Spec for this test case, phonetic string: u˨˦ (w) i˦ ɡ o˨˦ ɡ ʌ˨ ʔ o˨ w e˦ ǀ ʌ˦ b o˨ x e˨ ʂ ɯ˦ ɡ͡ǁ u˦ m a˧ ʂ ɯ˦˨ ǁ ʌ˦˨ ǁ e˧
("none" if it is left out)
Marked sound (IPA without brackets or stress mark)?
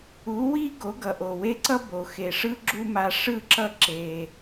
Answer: w